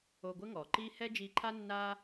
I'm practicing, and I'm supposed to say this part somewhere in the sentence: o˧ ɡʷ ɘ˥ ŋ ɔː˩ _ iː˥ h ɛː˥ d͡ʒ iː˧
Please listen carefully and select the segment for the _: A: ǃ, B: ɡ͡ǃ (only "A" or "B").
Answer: A